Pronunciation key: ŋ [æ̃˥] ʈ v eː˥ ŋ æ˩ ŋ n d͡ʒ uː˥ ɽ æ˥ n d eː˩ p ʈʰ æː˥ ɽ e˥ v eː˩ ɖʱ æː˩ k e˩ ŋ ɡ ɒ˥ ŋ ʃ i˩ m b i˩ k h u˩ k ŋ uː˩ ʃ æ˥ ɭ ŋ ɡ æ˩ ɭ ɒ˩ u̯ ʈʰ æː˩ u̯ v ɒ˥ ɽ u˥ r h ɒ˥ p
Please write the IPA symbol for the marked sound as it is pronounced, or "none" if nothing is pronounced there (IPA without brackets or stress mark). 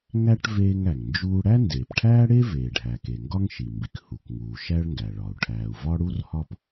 æ˥